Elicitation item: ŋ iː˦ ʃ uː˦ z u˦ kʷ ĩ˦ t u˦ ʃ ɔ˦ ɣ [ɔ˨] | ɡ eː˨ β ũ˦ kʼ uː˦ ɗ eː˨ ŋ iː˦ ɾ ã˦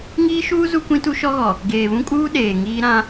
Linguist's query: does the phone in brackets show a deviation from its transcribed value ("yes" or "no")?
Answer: no